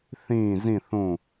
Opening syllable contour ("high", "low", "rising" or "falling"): falling